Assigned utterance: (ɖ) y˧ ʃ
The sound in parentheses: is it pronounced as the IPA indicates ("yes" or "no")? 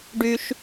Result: yes